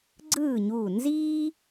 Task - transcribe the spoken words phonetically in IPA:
ɡ͡ǀɯː˥˨ɲuː˧˩ nziː˥

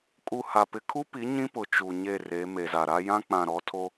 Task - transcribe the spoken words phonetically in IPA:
kʼu˨ ha˨ pɪ˨kʰu˦pi˨˦ ɲĩ˦pʊ˨ t͡ʃu˨ɲe˦˨re˨˦ me˨za˨ɾa˦ jã˦k͡pã˨ɾɔ˨˦tʰo˦

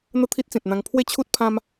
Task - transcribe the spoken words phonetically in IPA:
n̪ə˥˧t̪ʰi˦t̚t͡sĩ˨t̚n̪ã˧ŋ pʰwe˦t͡ɕʰu˦t̚pʰã˦m

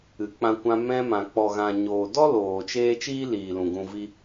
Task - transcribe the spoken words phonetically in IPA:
ɨ˨k͡pã˧kʷã˧ mɛ̃˧mã˨ k͡pɔ˨ɣã˨ɲoː˨ dɔ˦loː˨t͡ʃeː˧ t͡ʃiː˦liː˨lũ˨ ɡũ˧vi˦

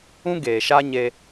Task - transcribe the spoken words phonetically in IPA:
ũ˦ɡeː˨ʃa˦ ɲe˦

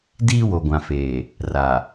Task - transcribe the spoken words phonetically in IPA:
diː˦wo˨ɡʷã˨feː˨ | ra˨

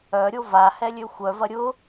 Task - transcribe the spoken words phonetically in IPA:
œɾʲo vahɛlʲø xʷœvɐ ɾʲʊ

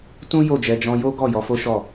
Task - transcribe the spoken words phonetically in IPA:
tũ˦ jo˦˨d͡ʒɛ˧ d͡ʒɔ̃˧jo˦ ɡɔ˦˨jɔ˧fo˦ʃɔ˦˨

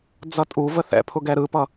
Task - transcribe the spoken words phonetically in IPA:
d͡zʌtʼuvə θɛ̰pʰʊ ɡɛɾɯpʌ

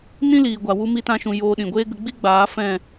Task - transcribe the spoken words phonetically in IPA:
nĩ˦liː˨ɡʷa˨ wu˦mi˦tã˦ʃũ˧ joː˧ɗĩ˨ɡʷeː˦ ɡə˧ɡ͡bi˦ɡ͡baː˨˦ fɛ̃˦˨

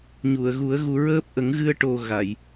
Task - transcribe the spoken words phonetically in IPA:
ɲu˨˩˨ə̯ɣu˨˩˦ə̯ ɣu˧ɹəː˦˥p̚ ʔə˨˩˦ŋɣɨ˧ə̯ ʈo˧ɣa˨˩˨j

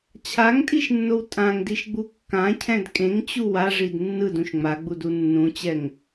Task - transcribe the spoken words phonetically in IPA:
t͡ɕʰaŋtʼiʃnːow tʼãŋdiʃɡ͡bu kːãcʰɛ̃d kʼẽŋt͡ɕu waʐid nːɯdũʃ ŋ͡maɡ͡budu nːũt͡ɕɛŋ

